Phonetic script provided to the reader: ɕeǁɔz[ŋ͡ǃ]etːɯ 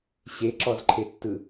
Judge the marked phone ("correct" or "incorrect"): incorrect